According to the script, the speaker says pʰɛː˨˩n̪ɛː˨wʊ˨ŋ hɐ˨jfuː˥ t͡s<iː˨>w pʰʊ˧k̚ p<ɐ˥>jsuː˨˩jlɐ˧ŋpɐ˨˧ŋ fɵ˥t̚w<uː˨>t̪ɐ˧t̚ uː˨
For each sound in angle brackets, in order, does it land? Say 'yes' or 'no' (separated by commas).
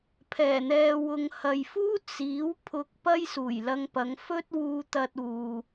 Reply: no, yes, no